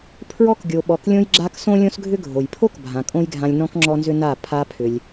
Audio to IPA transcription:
pʰ ɹ ɔ˦ k ɡʲ o˨ ɓ ɔ˨ k lʲ õ˧ j ɡ͡ǁ a˧ k s õ˦ lʲ õ˦ s ɡʱ ʏ˦ ɡʱ o˨ j pʰ o˦ k bʱ ã˨ kʼ õ˦ j ɡʱ ã˧ lʲ n ɔ̃˦ k ŋ͡ǁ ɔ˦ n z ʏ˦ n a˦˨ pʰ a˧ pʰ ʏ˧ lʲ

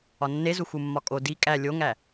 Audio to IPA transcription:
ɒ nː e z u x u mː ɒ kʼ o d i kʼ æ lʲ o ŋ æ

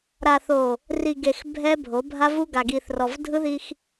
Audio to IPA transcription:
ɾ a˨ θ o˨ | r i˨ ɡ e˨ x bʱ ɛ˦ bʱ o˨˦ bʱ a˦ v u˦ ɡ a˨ ɡ i˨ θ r ɔ˨ v dʱ ɯ˦ ð i˦ x

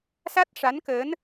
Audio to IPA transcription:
s a˦˥ t̚ ʂ a˧˥ n k əː˧˥ n

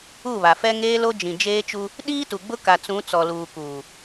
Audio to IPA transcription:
u˦˨ β a˨ f ɛ˦ ŋ eː˦ l o˦ d͡ʒ ĩ˨ d͡ʒ eː˦ t͡ʃ u˦ | ɗ iː˦ t u˨ ɡ͡b ʊ˦ k a˨ t͡s ũ˨˦ t͡s ɔ˨ l uː˨ k uː˨

